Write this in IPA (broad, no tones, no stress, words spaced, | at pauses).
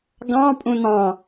ɡɑ̃pʼũ nɑ̃